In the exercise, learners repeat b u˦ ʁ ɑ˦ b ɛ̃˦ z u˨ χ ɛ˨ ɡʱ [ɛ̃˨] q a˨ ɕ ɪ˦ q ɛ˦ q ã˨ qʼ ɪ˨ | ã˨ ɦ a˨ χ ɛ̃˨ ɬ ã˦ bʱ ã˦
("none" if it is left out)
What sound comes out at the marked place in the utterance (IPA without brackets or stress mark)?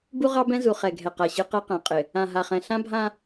ɛ˨